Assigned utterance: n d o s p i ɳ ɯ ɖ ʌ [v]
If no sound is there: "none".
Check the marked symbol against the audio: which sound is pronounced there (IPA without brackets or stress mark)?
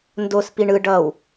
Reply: w